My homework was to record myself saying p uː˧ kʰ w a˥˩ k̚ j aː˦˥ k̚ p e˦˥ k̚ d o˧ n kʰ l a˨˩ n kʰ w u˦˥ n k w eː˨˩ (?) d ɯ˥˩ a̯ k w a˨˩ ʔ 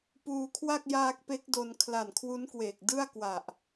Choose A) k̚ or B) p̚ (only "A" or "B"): A